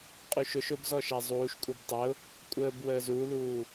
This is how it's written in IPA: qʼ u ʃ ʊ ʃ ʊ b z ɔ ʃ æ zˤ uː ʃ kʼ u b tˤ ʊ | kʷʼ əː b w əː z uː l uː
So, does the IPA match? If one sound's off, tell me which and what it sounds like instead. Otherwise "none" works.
none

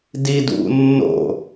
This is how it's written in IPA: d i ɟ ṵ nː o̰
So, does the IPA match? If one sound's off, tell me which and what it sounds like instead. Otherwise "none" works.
ɟ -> d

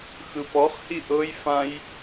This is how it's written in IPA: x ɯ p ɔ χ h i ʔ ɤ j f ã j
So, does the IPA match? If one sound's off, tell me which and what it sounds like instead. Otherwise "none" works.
none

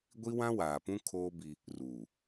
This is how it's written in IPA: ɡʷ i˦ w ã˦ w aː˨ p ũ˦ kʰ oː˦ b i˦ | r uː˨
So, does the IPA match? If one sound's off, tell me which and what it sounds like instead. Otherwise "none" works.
none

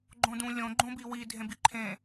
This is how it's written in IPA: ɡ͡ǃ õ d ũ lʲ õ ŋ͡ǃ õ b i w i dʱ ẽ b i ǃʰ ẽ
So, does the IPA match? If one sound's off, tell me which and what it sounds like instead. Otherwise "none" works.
ŋ͡ǃ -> ɡ͡ǃ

